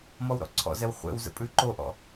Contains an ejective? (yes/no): yes